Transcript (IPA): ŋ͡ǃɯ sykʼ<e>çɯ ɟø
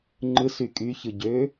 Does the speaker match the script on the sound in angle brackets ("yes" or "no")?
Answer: no